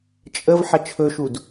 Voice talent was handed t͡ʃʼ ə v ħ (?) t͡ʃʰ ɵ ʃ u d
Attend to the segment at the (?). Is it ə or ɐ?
ɐ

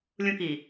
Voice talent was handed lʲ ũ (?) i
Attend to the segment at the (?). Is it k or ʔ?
k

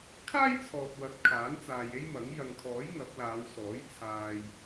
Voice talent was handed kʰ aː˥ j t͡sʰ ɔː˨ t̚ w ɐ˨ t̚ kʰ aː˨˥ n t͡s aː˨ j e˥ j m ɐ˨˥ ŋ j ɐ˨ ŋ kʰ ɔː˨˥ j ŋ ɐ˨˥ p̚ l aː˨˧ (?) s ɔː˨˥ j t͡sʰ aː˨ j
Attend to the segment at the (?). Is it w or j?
w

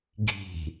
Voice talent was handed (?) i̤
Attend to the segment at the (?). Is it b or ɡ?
ɡ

